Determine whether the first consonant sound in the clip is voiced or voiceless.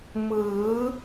voiced